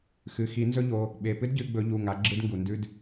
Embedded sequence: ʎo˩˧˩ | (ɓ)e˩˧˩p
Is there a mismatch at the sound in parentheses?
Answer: no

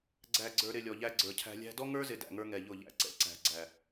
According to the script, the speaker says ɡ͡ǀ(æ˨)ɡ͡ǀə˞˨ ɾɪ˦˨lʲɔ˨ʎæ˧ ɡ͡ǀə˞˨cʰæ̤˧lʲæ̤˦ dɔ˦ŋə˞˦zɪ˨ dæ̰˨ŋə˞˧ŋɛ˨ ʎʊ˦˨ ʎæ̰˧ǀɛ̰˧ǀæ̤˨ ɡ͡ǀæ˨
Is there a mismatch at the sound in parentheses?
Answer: no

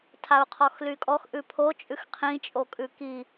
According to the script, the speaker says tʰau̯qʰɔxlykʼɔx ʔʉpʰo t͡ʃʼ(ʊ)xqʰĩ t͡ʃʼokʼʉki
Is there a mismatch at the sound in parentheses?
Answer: yes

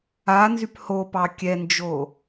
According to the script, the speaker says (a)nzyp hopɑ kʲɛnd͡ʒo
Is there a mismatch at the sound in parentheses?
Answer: no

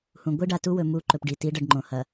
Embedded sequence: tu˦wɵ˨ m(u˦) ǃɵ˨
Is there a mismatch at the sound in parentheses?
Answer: no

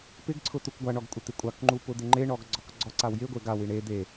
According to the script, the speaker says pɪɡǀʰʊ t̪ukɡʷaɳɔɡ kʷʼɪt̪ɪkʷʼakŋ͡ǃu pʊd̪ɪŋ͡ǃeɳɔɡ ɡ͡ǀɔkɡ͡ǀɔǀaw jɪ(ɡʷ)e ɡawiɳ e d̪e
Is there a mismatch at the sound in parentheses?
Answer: no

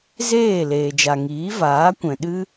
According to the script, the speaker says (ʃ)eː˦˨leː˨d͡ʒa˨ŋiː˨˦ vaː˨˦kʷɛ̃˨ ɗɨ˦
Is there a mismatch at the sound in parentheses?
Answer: yes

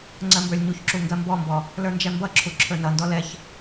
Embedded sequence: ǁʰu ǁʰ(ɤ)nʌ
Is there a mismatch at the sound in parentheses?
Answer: yes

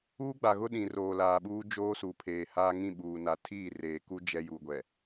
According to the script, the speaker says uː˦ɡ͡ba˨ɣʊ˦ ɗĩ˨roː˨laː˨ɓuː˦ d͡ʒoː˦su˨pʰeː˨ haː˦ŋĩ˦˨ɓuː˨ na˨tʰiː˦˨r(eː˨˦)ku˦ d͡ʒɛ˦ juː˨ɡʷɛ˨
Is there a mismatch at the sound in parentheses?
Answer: yes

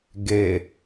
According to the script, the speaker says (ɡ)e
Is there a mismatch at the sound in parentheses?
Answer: no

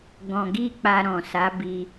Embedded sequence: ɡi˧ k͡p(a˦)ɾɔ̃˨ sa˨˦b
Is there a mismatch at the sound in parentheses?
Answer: yes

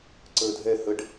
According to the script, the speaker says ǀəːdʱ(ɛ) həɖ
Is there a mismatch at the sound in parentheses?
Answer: no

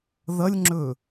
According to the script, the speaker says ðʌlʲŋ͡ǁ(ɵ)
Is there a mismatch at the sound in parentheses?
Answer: no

